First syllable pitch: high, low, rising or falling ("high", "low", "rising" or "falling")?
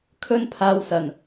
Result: high